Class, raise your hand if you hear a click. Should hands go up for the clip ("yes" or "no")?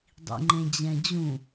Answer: yes